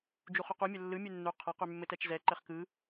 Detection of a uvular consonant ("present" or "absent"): present